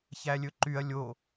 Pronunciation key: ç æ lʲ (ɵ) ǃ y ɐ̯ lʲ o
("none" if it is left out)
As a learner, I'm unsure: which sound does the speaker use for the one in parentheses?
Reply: ɵ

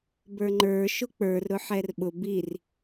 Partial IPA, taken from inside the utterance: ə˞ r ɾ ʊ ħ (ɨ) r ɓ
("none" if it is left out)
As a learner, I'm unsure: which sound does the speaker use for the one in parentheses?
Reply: ɛ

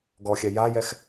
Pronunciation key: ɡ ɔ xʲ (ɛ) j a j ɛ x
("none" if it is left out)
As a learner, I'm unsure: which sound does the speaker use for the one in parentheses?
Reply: ɛ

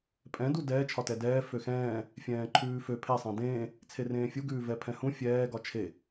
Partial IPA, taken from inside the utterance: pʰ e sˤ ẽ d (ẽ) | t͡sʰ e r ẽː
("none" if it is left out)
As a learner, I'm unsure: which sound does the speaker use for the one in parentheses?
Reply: ẽː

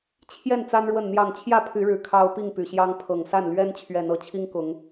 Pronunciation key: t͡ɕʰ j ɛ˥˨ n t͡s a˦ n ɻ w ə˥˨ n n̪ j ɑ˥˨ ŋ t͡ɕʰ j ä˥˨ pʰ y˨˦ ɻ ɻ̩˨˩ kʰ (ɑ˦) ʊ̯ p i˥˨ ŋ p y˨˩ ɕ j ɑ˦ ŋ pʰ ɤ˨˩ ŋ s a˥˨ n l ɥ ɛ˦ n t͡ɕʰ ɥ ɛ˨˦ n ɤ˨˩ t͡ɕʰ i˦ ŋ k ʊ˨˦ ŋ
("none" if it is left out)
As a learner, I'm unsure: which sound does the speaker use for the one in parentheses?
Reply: ɑ˦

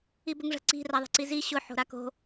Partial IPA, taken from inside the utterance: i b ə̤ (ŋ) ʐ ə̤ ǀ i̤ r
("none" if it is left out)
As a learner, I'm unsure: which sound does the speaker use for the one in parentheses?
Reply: ŋ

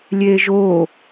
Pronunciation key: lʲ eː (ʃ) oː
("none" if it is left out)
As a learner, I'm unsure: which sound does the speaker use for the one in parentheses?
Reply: ʒ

